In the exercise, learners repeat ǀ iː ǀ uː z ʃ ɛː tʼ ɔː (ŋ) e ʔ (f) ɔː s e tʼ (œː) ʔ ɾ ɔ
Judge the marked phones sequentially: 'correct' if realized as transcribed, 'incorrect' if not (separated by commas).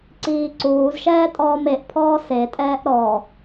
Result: incorrect, incorrect, incorrect